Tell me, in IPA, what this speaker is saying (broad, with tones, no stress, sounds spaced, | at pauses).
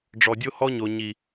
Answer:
ɖ͡ʐ ɔ˨ dʲ o˦ h ɔ˦ ɲ o˨ ɲ i˨